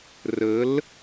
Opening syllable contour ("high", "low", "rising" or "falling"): rising